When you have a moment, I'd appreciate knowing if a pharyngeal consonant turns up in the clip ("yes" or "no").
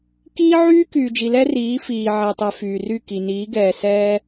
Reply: yes